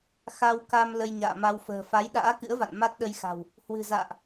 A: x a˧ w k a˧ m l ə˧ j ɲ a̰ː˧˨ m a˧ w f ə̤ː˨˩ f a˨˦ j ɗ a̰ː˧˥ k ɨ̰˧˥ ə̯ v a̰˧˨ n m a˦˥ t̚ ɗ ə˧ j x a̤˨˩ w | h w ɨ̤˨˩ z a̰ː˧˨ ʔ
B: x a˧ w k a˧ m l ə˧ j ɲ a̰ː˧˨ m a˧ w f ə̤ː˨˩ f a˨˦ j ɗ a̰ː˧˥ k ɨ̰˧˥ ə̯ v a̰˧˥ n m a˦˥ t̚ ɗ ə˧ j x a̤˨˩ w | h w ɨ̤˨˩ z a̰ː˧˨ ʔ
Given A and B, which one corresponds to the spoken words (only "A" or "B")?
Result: A